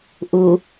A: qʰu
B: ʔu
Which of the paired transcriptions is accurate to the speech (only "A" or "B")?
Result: B